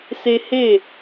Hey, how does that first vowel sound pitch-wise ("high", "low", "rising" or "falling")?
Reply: high